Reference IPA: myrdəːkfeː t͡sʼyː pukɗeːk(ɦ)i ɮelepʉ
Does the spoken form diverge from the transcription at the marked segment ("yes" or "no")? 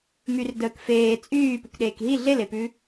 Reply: no